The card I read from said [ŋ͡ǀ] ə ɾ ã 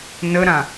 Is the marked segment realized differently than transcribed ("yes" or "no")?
yes